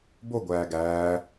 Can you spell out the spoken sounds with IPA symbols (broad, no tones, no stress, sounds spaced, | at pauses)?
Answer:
b o ɡʷ æː ɡ æː